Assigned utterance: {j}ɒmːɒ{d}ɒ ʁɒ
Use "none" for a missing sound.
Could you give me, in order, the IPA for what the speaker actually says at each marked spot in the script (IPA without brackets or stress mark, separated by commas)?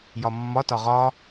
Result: j, t